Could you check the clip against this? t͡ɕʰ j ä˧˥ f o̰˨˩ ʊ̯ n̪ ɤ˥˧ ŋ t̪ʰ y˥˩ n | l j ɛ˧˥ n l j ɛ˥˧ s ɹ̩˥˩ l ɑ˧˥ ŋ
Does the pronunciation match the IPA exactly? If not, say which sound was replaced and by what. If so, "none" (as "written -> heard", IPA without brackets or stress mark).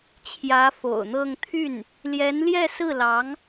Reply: none